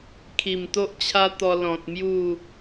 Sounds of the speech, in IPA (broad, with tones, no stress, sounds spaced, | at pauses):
kʰ i˨˩ m t̪ o˦ ʔ t͡ɕʰ a˦ t̪ ɔ˧ l ɔ̃˨ t̚ m j u˥˧